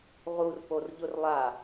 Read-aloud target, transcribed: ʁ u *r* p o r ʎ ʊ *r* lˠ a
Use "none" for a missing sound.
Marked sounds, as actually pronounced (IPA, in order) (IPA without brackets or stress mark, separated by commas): r, r